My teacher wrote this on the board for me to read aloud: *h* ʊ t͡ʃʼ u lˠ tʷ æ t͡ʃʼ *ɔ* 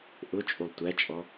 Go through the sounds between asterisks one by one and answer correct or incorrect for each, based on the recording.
incorrect, correct

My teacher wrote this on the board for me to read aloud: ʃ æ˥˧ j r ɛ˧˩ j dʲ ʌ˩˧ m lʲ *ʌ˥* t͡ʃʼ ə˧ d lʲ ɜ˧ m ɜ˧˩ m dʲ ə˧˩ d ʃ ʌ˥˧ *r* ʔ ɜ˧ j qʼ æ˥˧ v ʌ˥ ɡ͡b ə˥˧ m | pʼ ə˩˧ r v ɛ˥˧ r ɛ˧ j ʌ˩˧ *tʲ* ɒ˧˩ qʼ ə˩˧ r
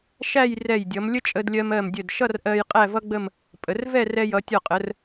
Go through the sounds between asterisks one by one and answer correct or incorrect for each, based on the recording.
incorrect, correct, correct

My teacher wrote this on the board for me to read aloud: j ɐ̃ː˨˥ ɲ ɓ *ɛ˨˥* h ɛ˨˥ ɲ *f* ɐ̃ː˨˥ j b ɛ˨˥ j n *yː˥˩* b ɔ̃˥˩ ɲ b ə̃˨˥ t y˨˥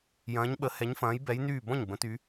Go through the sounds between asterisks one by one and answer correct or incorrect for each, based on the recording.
incorrect, correct, correct

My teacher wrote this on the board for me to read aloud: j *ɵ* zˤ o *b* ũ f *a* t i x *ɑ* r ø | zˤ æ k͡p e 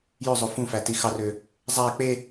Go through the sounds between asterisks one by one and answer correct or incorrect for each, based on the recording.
incorrect, incorrect, incorrect, correct

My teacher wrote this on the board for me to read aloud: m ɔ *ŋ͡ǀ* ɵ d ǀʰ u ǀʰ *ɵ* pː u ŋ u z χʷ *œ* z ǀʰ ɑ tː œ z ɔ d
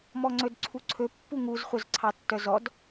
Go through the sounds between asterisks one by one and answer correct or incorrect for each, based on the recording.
correct, correct, correct

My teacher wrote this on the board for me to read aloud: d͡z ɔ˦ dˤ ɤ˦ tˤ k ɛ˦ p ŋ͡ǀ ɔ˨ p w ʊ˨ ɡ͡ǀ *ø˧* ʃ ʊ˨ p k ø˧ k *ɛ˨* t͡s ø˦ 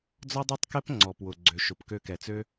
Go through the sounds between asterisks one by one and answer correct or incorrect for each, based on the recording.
incorrect, correct

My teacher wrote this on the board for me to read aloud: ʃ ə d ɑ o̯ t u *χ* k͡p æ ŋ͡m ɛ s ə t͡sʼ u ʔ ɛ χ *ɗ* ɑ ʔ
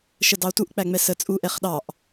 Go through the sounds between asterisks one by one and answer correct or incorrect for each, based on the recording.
incorrect, correct

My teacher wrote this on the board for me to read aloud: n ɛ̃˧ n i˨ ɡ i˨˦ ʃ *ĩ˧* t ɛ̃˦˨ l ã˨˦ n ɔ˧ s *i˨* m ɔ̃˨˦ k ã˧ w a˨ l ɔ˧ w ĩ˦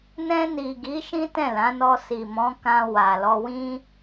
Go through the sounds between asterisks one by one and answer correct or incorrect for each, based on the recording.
incorrect, correct

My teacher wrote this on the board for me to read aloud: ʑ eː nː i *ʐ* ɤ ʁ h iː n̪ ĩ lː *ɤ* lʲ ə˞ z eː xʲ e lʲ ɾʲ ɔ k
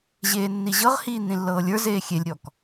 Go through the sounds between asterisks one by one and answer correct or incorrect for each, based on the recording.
incorrect, incorrect

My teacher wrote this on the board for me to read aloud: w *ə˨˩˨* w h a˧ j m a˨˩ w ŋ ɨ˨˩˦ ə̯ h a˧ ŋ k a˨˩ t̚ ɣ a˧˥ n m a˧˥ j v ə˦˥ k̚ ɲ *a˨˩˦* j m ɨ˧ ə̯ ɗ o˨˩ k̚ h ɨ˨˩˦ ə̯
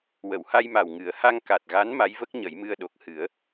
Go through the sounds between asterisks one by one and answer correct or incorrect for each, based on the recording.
correct, incorrect

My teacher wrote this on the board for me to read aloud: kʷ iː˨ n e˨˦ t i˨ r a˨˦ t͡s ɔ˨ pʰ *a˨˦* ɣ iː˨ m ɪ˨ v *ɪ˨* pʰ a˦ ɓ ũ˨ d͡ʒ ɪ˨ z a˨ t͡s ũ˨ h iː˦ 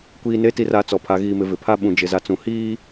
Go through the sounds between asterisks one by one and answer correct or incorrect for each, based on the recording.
incorrect, correct

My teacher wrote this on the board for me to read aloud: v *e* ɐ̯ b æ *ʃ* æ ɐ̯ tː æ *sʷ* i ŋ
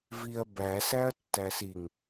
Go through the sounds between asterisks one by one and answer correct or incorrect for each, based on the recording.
incorrect, incorrect, incorrect

